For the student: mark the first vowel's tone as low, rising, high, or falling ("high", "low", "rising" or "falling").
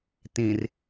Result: low